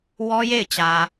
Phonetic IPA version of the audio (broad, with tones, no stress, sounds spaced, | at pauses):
w ɔ˦ j e˦˨ ɪ̯ t͡ɕ ä˨